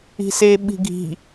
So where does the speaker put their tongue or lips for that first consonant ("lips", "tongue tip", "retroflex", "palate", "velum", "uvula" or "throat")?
tongue tip